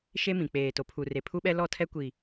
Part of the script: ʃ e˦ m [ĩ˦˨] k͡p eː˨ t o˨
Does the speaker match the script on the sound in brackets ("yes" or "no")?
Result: no